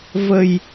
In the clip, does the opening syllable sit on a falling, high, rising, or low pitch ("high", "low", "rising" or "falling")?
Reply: low